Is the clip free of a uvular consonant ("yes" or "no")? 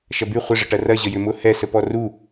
no